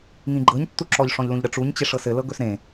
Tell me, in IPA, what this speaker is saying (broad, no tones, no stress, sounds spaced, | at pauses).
ŋ ĩ ɡ͡ǃ ɤ ɲ tː u ǁ ɔ ʎ ʂ ɔ̃ ʎ l ũ ʎ ɾ ə ʈ͡ʂ u ɲ t͡ɕ e ʂ ɤ s ɘ l ɤ ɡ ɵ s ɾ ẽ